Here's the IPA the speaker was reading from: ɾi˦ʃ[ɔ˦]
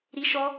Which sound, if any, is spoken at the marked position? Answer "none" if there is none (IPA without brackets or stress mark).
ɔ˦